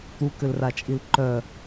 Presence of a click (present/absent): present